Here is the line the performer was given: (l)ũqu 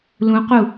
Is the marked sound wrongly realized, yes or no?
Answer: no